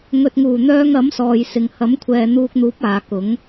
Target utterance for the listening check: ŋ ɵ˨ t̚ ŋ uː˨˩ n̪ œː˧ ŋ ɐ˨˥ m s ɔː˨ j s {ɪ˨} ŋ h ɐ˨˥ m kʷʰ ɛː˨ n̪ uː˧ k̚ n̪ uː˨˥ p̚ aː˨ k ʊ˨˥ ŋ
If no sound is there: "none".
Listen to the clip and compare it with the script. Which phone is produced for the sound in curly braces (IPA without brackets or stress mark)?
ɪ˨